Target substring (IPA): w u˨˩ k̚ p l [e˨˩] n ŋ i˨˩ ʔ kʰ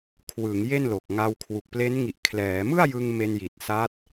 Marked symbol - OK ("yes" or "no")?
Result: no